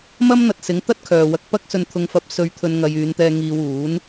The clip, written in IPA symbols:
m ɐ˥ m n̪ ɐ˧ t̚ s ɪ˨˥ ŋ t̪ ɐ˥ t̚ kʰ œː˨ w ɐ˧ k̚ p ɐ˥ k̚ s ɵ˧ n t̪ʰ ʊ˧ ŋ f ɐ˧ p̚ s ɵ˧ ɥ t̪ʰ ɵ˧ n ŋ ɐ˧ j yː˨˧ n t̪ ɛː˧ ŋ iː˧ w uː˨˥ n

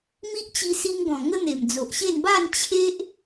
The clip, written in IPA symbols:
m i˦ ʔ t͡ɕ i˧ s i˧ ŋ ɡ ɔ̃˨˩ ŋ ə˦ n̪ e˨˩ m d͡z o˨ ʔ ɕ e˥˧ n b a˥˧ n t͡ɕʰ e˦ ʔ

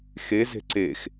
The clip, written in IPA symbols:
x e z e̤ ǀ e x

